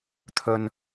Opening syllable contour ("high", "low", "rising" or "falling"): low